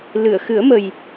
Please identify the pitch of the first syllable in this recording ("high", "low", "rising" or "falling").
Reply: low